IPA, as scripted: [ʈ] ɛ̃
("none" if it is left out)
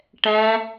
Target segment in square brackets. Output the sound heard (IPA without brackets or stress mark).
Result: ʈ